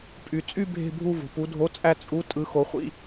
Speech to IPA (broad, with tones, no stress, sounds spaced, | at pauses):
pʼ y˨ t͡sʼ y˥˧ bʱ e̤˥˧ bʱ u˥˧ v o̤˨ p u˨˥ dʱ o˧˥˧ t͡sʼ æ˥˧ t͡sʼ u˧˥˧ tʼ ɯ˨˥ x o˨˥ χʷ ḭ˥˧